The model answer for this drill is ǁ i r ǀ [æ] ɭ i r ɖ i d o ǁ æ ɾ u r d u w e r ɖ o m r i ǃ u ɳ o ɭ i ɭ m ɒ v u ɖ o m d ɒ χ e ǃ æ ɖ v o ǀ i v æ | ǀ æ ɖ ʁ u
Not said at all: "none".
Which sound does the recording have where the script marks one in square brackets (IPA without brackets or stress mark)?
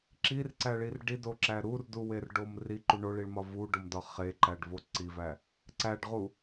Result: æ